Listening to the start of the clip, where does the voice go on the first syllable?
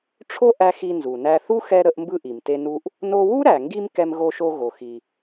high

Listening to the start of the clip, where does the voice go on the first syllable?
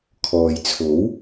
low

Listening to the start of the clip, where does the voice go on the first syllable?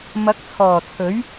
rising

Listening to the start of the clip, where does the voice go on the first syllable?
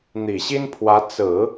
low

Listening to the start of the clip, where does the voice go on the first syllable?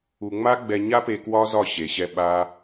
low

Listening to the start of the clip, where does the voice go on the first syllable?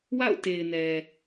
falling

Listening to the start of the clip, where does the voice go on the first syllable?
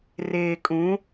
low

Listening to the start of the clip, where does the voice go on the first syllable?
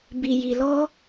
low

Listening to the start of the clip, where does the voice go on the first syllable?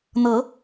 rising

